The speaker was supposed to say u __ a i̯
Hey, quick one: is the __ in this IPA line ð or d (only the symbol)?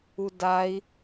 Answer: d